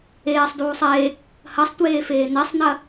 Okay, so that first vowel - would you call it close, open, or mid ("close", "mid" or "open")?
mid